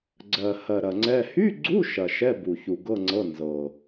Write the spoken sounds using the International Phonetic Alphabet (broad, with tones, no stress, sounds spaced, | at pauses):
ɡ͡ǀ ɜ˨˩ h ɜ˨˩ ɾ ɐ˨˩ ŋ͡ǀ ɛ˧˥˧ h y˧˥˧ ɡ͡ǀ u˧˥˧ ʃ ɐ˨˩ ʃ ɛ˧˥˧ b u˨˩ ç u˨˩ ɡ ɤ˧˥˧ ŋ͡ǀ ɤ˧˥˧ n z ɤ˨˩